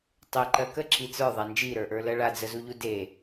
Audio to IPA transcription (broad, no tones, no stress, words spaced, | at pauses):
tˤeǃɜ kəǁi t͡sə˞ðˤa nd͡ʒiɾə˞ʔə˞lɜ ɭad͡zəzuʎu de